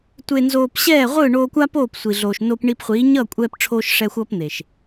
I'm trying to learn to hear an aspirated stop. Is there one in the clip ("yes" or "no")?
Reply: yes